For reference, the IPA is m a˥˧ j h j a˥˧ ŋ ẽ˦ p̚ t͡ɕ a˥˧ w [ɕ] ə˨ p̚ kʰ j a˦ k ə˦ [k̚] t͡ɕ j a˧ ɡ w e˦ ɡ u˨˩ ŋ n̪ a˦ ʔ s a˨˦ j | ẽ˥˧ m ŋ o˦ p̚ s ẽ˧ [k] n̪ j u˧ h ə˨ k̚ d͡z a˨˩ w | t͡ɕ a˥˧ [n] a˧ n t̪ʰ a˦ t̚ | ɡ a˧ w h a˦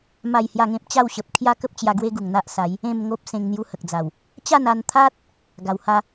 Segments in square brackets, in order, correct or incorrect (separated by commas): correct, incorrect, incorrect, correct